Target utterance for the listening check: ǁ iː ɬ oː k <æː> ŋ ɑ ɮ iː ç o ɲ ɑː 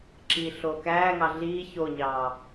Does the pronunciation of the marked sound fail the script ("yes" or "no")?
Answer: no